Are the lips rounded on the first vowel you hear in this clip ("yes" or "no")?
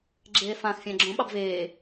no